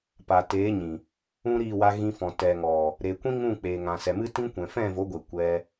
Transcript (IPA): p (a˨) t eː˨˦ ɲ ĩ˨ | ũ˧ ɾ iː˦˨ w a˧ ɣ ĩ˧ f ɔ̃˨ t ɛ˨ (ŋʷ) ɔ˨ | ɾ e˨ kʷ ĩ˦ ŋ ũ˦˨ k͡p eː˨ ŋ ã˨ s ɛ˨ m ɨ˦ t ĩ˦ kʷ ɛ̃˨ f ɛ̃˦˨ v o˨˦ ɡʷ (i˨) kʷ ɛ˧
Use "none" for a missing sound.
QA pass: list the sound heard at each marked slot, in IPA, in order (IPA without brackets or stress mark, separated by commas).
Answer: a˨, ŋ, e˨